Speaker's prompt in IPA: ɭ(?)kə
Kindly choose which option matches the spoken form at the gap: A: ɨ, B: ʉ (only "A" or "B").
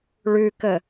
B